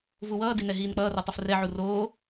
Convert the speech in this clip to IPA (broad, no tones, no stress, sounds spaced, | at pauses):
v u w ʌː d i n ɛ ɦ iː n k͡p ʌː r ɛ tˤ o f r ɛ ʕ u r oː